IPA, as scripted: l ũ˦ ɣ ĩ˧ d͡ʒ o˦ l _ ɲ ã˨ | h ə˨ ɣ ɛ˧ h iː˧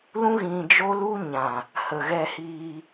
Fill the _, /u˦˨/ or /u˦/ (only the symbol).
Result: u˦